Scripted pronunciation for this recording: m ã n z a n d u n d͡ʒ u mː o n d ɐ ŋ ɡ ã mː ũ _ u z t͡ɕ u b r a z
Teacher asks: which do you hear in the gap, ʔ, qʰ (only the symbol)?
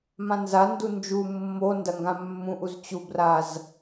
ʔ